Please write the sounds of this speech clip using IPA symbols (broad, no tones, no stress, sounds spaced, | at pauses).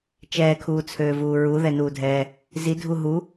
t͡ʃ ɛː kʰ uː t͡sʰ øː v uː ɹ u ð ɛ n uː dʱ ɛː | z i dʱ u ɦ u